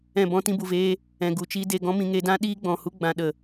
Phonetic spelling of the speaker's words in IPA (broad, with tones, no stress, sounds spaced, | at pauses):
ɛ̃˦˨ b ɔ̃˦ t ĩ˧ b u˨ v eː˧ | ɛ̃˨ ɡ u˨ t͡ʃ i˧ d e˦˨ ɡ ɔ̃˦ m ĩ˧ ŋ e˧ d ã˦ ɗ iː˦ ɡ͡b ɔ̃˨ h u˦ ɡ͡b ã˧ ɗ ə˨